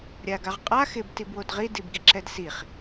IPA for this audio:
ɾʲ a ɡ a ʁ qʼ a x ɪ b t i b w o d ʁ i d i b ɡ i ǁ ɛ d s i χ

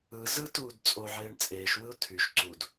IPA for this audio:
ɯ z ɯ t uː d t͡sʼ o ʕ eː ɳ t͡sʼ eː ʃ w ɯ ʊ̯ tʰ y ʃ ǀ u d

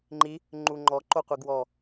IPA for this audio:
ŋ͡ǃ i | ŋ͡ǃ u ŋ͡ǃ ɔ ǃ o qʷ i ɡ w ɔ

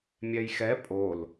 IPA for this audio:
mʲ ɛ j x ɛ pʼ o l

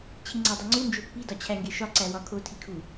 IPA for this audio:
t͡ɕʰ i ŋ͡ǀ æ dˤ i ŋ͡ǀ u n d͡ʒ o pː i d ɒ t͡ɕʰ æ ŋ ɡ e ʃ ɒ ǀ æ w ɒ kʰ o tʰ i kʰ u

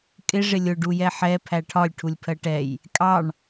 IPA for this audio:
kʼ ɪ ʐ ɪ lʲ ʊ ɖ u j ɛ ħ ɛ pʰ æ ʈʰ ɒ lʲ ʈʰ u lʲ pʰ ɜ ʈ ɛ j | kʼ ɑ ɳ

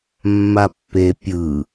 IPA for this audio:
mː a pː e pʲ ɯ

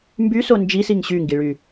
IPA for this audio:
m b y s o n d͡ʒ i s i ŋ ɕ y ŋ ɡ i ɭ y

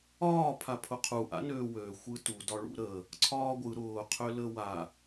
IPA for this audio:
ɒː pʰ a pʰ ʊ qʰ u ʔ a̰ n øː w øː xʷ ɯ t u d ɒ ɭ ṵ ɾ əː | ǀʰ ɒː ɡʷ ɯ ɾ ʊː qʰ ø l ə w a

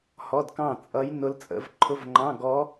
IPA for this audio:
h ɔ˧˥˧ d k ɑ̃˥˩ t͡sʼ ʌ˧˥ j n ʊ˧˥ l t͡sʼ ə̰˧˥˧ v ǃʰ ʊ˧˥˧ v ŋ͡ǃ ɑ̃˧˥˧ ɡ ɔ˧˥

